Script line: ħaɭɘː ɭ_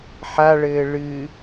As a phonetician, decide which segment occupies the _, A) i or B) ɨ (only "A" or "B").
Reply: B